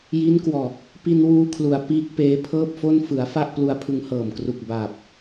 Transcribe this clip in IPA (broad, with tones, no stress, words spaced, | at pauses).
ji˦˥nkwɔː˨˩k̚ | pi˧nwuː˧kʰlu˩˦a̯ piː˦˥k̚peː˦˥pʰɤː˥˩p̚fo˥˩n fɯ˩˦a̯ fa˥˩ʔ plu˧a̯pʰɯ˧ŋhɤː˨˩m kru˨˩k̚baː˨˩p̚